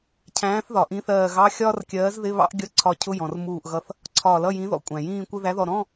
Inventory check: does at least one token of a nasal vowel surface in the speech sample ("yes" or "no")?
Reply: yes